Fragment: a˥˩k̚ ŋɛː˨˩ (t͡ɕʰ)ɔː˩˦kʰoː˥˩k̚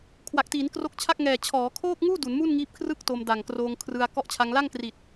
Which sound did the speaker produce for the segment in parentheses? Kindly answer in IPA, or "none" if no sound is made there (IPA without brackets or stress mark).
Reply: t͡ɕʰ